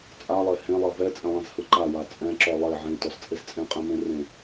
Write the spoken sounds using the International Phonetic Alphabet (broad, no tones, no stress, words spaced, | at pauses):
t͡sʼalˠe hẽlˠɛ vɛt͡sʼẽlˠẽzhɯ ǃawa t͡sʼɛ̃ǁɔ lˠe ʕẽtɔzt͡sʼez t͡sʼẽqʼẽmẽrẽ